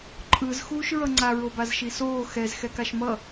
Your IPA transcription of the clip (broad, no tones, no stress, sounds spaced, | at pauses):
ǃʼ ɯ z x uː ʃ ɹ ʌ ŋ͡ǀ a ɹ o b a z ʃ i s oː x ɛ z x ɛ k a ʃ m ʌ